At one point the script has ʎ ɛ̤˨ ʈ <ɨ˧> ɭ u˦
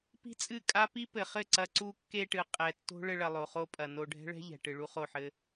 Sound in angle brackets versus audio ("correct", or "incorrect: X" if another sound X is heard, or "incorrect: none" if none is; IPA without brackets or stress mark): incorrect: ɨ˨